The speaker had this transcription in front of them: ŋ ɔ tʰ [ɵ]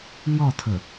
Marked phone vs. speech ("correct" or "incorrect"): correct